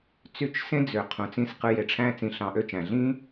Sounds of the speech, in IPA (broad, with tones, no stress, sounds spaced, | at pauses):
t͡s y˦˨ t͡ʃ s ẽ˦ d͡z ø˨ qʰ ũ˨ t͡s ĩ˧ s q ɯ˧ j e˨ ʈ͡ʂʰ æ̃˦ t͡s ĩ˧ ɬ ɑ̃˧ ʔ ø˦ t͡ʃ æ̃˨ ɮ ĩ˦